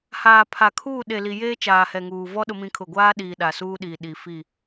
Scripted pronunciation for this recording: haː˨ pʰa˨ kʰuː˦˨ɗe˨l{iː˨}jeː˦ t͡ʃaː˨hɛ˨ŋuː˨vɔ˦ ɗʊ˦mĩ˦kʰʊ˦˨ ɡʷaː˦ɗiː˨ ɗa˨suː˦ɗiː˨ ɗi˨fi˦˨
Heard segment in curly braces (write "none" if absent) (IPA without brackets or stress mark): i˨